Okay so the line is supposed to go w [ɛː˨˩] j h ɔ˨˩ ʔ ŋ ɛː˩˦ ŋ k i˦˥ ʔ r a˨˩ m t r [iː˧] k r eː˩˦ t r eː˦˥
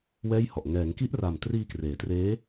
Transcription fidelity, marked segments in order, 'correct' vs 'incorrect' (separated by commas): incorrect, correct